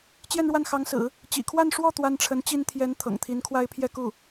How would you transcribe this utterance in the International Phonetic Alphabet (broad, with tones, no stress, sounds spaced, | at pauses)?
t͡ɕ j ɛ˥˧ n ɻ w a˥˩ n x ɑ˧˥ ŋ s ɹ̩˨˩˦ | t͡ɕ ḭ˨˩ kʰ w a˥˧ n ʂ w ɔ˥˩ t̪ w a˥ n ʈ͡ʂʰ ə˧˥ n t͡ɕ i˥ n t̪ʰ j ɛ˧˥ n t̪ʰ ɤ̰˨˩ ŋ t̪ʰ i˧˥ n kʰ w a˥ ɪ̯ pʰ j ɛ˥˧ k u˥˩